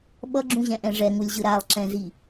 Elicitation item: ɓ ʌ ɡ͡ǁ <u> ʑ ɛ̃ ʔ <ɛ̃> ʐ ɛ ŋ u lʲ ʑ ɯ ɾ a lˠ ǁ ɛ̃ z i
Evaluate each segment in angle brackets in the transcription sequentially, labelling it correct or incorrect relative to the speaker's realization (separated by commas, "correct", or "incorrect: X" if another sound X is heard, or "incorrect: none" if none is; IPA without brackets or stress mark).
incorrect: ũ, correct